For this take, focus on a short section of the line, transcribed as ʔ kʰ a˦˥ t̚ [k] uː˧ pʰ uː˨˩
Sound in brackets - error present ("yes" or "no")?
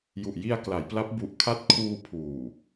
yes